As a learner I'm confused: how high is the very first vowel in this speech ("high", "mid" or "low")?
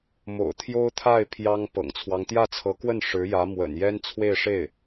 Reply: mid